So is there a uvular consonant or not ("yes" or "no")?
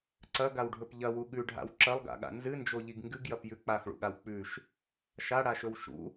no